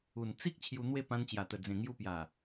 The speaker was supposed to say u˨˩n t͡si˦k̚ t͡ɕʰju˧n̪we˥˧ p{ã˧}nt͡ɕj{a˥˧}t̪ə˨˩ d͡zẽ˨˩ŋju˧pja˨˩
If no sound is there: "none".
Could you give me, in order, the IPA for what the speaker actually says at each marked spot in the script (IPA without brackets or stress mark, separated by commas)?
ã˧, a˨˩